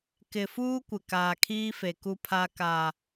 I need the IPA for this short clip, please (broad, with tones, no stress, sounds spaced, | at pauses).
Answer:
k ɪ˨ f uː˦ kʷ ɪ˨ k aː˨ kʰ iː˦ f e˨ k u˦ pʰ a˦ k a˦